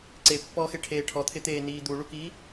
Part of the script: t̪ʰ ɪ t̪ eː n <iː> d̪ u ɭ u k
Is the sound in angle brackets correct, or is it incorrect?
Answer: correct